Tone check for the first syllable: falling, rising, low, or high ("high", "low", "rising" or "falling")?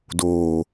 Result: low